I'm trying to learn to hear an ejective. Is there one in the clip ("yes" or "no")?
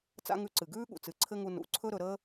no